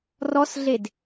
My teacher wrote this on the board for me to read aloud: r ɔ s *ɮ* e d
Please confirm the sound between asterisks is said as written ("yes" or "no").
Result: yes